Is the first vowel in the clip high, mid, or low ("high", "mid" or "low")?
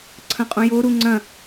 low